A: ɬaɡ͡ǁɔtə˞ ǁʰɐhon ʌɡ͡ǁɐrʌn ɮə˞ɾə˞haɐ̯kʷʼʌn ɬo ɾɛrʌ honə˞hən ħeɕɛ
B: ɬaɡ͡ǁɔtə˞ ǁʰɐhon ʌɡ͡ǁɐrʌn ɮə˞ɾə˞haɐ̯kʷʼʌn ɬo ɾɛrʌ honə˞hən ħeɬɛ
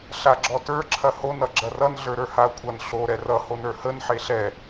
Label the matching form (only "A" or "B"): B